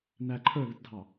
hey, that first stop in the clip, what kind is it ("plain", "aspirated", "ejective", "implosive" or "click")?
click